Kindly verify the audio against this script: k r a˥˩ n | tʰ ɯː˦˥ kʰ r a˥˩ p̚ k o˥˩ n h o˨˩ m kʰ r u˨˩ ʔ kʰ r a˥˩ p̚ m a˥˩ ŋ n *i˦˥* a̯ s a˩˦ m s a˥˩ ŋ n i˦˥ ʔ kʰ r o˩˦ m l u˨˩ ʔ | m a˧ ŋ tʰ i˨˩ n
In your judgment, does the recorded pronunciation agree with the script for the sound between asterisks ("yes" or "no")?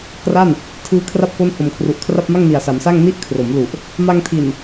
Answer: no